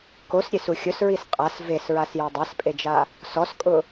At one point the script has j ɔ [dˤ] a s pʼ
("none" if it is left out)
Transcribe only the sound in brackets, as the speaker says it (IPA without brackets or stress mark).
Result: dˤ